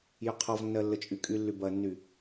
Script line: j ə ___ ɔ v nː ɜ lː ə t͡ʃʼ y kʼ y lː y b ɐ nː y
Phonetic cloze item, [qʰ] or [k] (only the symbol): qʰ